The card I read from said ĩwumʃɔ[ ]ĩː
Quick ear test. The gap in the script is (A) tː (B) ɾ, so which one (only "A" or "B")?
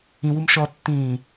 A